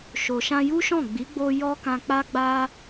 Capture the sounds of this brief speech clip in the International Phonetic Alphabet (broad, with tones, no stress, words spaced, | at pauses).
ʃo˨ʃã˧ju˦ʃɔ̃˦˨ ɡ͡bi˨˦ɡ͡bo˧ jɔ˦kã˧k͡pa˦ɡ͡ba˦